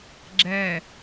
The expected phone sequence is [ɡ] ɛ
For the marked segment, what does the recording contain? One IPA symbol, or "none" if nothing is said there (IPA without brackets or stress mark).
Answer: ɡ͡ǁ